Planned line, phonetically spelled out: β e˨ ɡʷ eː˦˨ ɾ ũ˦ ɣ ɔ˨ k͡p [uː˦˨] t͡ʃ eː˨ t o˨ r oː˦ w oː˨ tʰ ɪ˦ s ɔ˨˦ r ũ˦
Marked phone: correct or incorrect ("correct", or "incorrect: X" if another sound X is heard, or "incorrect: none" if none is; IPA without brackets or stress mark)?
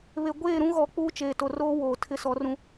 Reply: incorrect: uː˦